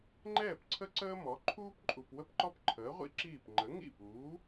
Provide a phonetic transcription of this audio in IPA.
ŋ͡ǃɛː˥˩p ǀʰə˥ǀəː˥mɔ˩˥ ǃʰuː˥pǃʼu˩p wə˥pǃɔ˥pǃʰəː˩˥ʁʷḭ˥ ǁiː˥˩p ŋ͡ǃə˩˥ŋḭ˥˩puː˩˥

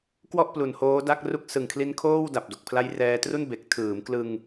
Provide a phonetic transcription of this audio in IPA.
kwɔ˥˩ʔ plu˨˩n hoː˦˥da˥˩k̚ ru˦˥k̚sɯ˨˩ŋkʰli˦˥nkʰoː˥˩w da˨˩p̚do˨˩k̚pʰla˦˥j rɛː˧tru˥˩n be˨˩k̚ tʰɯː˩˦mklɯ˧ŋ

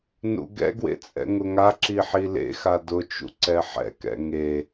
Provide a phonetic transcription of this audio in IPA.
nṵɡɛ̰ɡwḛ t͡sʼɛ̰ŋʊŋaǁi ħilḛxa dʊt͡ʃṵ ǀɛħɛ̰kɛ̰ ŋe

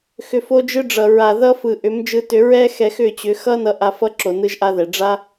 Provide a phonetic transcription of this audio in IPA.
xʏ˨fo˧d͡ʒɯ˧ɖ͡ʐʌ˨ ɹa˨ðʌ˧fɯ˨ ʔʏ˨˦md͡ʒɯ˧tʏ˧ ɹɛ˦xɛ˧x ʏ˦˨t͡ɕʏ˨˦ xʌ˦nʌ˧ ʔa˧fʌ˦ǁo˨nɯ˧ʒ ʔa˦ðɛ˨ ɖ͡ʐa˦

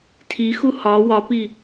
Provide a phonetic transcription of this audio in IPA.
tʰixu hɒ wɒpi

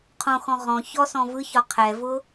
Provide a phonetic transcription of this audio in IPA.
qʰõxɔ̃ ʁɔ̃ çɔsɔ̃ vɯçɒ qʰɛvʊ

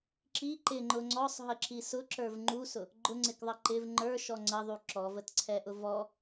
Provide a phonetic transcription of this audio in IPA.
ǁi ǃɪŋ͡ǃʊ ŋ͡ǀɔsˤɦəǁi sʊǁə˞v ŋ͡ǃusʊ | ɡ͡ǃʊŋ͡ǀɪkðˤʌ ǃɪv ŋ͡ǃə˞ʃɔ ŋ͡ǀəðˤu ǁɔvətǀʰɛʔʊ vɔ

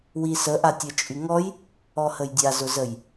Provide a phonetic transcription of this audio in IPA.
wisə ʔatʲɐt͡ʃʼyŋɔj | ɔhəjdʲa zʊzəj

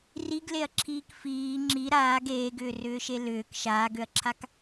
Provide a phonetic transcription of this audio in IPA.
riɡleɐ̯ǁʰiːk fiː ŋ͡ǁi ɾaːɡ eːɡʏːrʏːʃe lʏːk ʃaːɡøɐ̯ǁʰak

